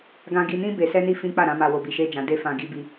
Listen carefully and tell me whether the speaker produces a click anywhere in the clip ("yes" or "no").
no